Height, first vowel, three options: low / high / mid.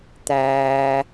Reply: low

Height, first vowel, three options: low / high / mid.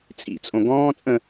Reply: high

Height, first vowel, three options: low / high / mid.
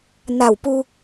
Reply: low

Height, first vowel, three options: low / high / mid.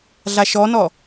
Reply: low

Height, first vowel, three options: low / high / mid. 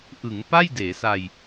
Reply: high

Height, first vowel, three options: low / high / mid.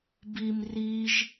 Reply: high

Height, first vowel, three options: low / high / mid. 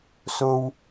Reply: mid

